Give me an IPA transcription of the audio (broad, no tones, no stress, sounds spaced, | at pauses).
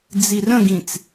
d͡z i r ə̃ ɡ ĩ t͡s